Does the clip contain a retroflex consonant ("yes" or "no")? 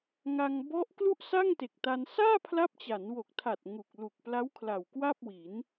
no